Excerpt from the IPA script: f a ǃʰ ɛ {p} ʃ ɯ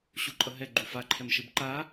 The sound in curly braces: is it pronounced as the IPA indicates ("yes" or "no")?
no